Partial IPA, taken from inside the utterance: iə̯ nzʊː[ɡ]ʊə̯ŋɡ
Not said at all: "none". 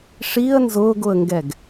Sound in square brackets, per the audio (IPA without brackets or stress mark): ɡ